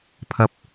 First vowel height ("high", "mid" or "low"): low